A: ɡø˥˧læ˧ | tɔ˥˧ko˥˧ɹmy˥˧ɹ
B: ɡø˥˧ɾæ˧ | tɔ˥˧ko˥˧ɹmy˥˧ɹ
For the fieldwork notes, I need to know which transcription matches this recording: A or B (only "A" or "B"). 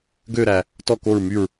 B